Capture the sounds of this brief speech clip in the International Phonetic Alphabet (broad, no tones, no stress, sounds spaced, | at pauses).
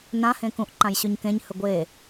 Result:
n ã h ẽ k ũ ʔ ǃ ã j ɕ ʉ ɲ k ẽ ɲ h ɵ ɡʷ e